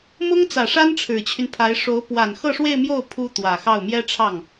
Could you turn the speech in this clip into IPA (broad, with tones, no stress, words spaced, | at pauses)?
mʊ˥ŋt͡sä˨˩ʂa˥n ʈ͡ʂʰɻ̩˨˩t͡ɕʰy˦npʰa˧˥ɪ̯ ʂo˧˥ʊ̯ pwa˨˩nxɤ˥˧ʂwe˥˧ɪ̯mjo˥˩ʊ̯ pʰu˥t̪wä˨˩xɑ˥˩ʊ̯ mjɛ˥ʈ͡ʂʰɑ˥˩ŋ